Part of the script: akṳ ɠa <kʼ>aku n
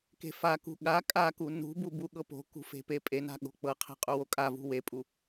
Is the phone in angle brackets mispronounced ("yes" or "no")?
no